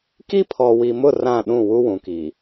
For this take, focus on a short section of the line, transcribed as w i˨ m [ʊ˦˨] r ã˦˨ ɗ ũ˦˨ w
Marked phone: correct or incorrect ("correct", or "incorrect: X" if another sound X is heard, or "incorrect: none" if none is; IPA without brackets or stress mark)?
correct